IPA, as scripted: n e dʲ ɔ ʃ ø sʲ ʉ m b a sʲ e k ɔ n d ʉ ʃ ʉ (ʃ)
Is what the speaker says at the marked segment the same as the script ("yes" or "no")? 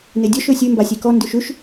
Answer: yes